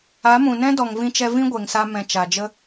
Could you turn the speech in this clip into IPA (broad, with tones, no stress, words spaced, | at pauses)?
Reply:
a˨˦mũ˨nɛ̃˦ dɔ˨ŋvĩ˧t͡ʃɛ˧ vĩ˦ɡʷe˨ŋsa˧ mɛ̃˨ t͡ʃa˨d͡ʒə˦